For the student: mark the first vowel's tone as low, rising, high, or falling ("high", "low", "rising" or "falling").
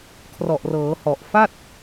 low